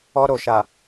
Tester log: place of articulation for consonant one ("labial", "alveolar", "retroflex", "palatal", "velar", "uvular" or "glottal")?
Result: alveolar